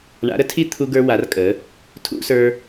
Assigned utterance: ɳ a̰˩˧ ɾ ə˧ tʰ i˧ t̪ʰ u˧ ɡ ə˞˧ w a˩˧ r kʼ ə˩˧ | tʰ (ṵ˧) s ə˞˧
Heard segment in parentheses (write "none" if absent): ṵ˧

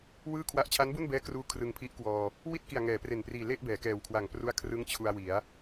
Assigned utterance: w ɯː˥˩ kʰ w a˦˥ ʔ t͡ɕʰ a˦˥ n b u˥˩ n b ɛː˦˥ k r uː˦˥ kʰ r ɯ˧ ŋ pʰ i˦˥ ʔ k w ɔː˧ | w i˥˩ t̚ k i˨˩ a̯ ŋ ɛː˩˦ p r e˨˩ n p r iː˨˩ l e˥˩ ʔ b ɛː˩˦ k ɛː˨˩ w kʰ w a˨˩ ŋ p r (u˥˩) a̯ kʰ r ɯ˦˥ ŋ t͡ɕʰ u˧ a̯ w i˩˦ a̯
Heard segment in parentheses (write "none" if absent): u˦˥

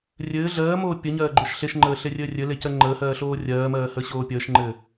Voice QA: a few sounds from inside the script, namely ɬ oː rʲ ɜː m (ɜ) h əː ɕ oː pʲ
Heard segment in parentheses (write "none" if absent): ɜː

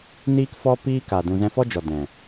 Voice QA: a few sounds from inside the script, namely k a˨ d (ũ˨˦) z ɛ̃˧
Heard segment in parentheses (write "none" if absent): ũ˨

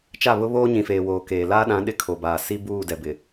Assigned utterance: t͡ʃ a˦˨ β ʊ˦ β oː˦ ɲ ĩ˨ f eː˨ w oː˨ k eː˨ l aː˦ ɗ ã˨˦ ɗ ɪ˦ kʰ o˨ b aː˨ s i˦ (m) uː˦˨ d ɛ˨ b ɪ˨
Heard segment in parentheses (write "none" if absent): b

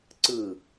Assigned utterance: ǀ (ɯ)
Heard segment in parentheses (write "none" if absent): ɯ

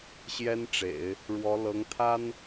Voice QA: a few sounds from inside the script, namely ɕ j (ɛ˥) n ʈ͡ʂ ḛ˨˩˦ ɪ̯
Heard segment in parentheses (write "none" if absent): ɛ˥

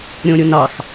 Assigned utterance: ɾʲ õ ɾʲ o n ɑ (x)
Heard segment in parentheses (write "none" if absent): x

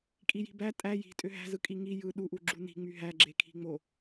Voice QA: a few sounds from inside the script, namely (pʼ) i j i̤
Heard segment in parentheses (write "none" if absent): kʼ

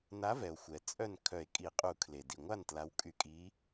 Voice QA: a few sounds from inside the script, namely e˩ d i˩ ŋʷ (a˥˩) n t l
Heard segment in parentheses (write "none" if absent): a˥˩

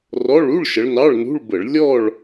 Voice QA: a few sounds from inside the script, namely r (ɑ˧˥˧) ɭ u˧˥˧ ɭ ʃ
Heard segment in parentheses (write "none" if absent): ɔ˧˥˧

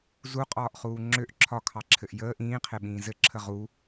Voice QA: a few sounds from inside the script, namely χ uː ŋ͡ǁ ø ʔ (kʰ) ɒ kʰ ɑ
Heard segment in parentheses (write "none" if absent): ǁʰ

